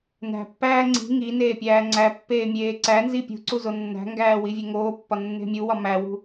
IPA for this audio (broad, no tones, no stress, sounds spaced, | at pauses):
n æ̤ pː æː ŋ͡ǀ i̤ ŋ i n eː pʲ æː ŋ͡ǀ æ pː eː mʲ eː ǀ æ n z i pʲ ṳ ǀ u z o nː æ̤ ŋ ɡ æː w i vʲ e ŋ oː pː ɒ nː e̤ mʲ u w ɒ m æ w ṳ